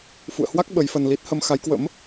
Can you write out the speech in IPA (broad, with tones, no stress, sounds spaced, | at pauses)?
f ṵ˧˨ ə̯ h w a˦˥ k̚ ɓ ə˨˦ j f ə˧ n l i˦˥ t̚ h ə˧ m x a˨˦ j k w ə̰˧˥ m